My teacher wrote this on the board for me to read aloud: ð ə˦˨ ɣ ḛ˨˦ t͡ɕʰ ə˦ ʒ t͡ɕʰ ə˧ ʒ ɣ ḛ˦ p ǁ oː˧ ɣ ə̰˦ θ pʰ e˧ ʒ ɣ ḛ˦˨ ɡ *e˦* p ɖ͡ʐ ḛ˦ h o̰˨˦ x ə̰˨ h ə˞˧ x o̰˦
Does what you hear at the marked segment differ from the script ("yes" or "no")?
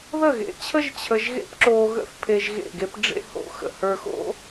no